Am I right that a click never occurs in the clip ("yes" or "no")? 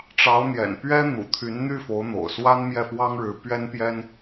yes